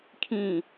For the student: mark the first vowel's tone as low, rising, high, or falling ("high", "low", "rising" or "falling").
falling